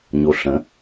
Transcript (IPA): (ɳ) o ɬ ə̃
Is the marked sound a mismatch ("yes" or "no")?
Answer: yes